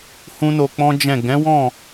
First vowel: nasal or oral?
nasal